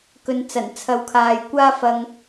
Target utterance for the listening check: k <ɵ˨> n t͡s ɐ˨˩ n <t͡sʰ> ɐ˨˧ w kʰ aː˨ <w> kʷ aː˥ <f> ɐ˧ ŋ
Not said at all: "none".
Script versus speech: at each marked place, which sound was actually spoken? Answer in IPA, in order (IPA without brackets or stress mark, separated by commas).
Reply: ɵ˨, t͡sʰ, j, f